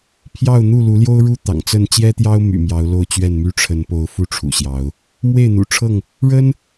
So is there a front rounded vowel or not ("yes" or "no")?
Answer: yes